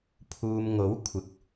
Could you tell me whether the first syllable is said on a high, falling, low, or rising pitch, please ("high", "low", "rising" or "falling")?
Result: low